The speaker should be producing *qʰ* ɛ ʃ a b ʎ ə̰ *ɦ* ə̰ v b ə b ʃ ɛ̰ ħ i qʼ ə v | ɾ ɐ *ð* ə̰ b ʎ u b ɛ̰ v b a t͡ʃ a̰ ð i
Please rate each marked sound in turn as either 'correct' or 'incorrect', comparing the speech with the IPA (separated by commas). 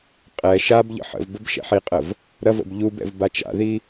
incorrect, incorrect, incorrect